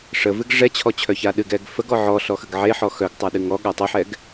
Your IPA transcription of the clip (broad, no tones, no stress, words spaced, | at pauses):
ʂəvɨɡ ʐɛt͡ɕʰɔt͡ɕʰœça ɗɨɡɛɡ fəɡɔ ʕɔɬɔxəɡ ʕeħɔ xœɡtˤaɗɨŋ ɔɠa tˤɨħɛɡ